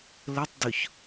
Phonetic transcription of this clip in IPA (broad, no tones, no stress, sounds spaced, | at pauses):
l ə tˤ d ʊ ç